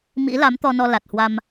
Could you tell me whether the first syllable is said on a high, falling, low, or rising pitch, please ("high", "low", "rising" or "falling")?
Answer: rising